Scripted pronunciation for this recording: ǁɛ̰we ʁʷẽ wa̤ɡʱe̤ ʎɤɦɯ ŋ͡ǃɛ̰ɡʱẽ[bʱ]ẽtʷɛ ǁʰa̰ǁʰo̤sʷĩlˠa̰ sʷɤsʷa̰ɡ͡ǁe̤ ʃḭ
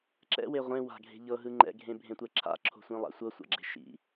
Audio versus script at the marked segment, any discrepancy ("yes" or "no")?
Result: no